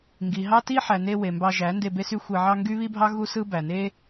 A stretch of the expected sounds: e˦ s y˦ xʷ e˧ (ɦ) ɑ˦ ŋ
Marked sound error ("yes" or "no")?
yes